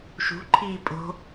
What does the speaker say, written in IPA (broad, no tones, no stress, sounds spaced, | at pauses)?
ʃ ṳ ǃʰ iː pʼ o̤